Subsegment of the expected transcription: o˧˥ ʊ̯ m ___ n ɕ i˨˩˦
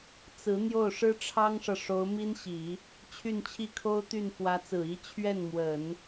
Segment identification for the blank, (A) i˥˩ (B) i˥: B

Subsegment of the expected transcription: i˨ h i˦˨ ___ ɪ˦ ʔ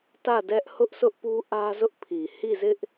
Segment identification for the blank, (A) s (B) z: B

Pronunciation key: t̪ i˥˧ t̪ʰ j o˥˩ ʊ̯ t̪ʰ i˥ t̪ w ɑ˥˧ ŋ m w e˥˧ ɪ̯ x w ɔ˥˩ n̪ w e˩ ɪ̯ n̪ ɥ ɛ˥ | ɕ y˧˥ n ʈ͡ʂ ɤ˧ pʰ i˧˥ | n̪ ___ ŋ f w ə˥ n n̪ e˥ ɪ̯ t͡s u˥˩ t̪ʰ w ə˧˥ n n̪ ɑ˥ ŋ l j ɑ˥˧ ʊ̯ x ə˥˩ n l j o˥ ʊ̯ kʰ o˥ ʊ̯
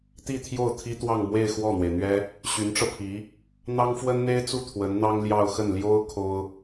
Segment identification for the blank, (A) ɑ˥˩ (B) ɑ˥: B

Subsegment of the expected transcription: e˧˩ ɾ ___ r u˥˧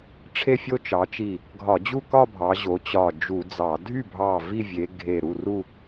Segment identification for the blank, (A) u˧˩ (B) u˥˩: B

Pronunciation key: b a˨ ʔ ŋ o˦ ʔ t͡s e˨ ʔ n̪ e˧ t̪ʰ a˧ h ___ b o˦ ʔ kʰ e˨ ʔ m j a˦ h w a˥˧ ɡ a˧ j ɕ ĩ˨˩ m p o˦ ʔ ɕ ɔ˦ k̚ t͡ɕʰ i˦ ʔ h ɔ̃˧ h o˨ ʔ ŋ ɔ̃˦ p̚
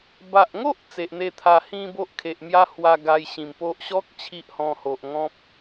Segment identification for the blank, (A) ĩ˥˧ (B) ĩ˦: A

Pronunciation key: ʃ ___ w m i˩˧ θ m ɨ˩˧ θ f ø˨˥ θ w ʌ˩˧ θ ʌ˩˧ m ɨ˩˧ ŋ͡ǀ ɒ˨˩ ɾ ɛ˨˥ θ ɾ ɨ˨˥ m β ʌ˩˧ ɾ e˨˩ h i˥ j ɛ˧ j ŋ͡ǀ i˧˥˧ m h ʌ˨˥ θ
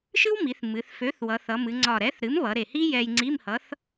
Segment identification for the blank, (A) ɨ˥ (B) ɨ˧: A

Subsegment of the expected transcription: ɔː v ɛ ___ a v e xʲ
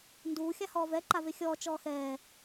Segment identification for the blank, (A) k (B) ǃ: B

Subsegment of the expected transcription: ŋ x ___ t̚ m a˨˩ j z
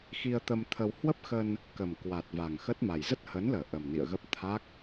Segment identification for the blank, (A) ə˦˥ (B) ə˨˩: A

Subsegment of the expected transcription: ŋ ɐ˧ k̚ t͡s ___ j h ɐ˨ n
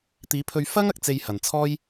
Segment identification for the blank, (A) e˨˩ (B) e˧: B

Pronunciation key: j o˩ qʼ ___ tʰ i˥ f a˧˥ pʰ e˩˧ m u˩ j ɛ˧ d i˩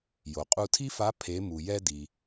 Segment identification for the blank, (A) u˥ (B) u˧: B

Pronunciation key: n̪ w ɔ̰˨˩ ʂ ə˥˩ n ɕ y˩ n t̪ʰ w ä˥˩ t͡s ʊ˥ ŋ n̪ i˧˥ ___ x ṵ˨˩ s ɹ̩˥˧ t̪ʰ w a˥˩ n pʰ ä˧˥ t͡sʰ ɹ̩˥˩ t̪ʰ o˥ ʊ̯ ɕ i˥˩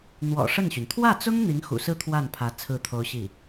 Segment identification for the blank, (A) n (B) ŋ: B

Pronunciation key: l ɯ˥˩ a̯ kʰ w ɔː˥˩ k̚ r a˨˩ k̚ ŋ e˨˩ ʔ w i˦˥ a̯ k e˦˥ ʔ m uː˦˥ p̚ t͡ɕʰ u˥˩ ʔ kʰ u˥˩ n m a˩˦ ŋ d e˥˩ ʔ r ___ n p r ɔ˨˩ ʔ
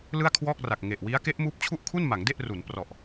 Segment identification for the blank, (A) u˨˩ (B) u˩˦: B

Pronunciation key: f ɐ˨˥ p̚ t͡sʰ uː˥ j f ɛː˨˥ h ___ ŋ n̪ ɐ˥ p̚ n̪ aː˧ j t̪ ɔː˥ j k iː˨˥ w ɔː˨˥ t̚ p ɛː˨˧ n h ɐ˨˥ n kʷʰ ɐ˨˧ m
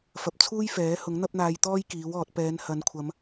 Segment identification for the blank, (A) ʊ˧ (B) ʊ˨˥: B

